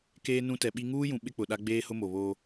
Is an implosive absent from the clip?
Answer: no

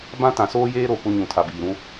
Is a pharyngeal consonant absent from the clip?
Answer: yes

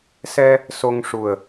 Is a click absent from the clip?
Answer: yes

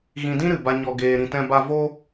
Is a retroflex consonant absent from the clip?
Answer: yes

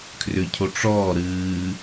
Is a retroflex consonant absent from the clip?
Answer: no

